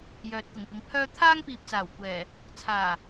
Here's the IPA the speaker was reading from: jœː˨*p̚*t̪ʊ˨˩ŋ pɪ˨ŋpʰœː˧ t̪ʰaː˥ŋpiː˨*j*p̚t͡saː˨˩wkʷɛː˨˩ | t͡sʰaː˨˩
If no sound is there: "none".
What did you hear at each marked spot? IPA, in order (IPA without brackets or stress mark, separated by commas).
t̚, none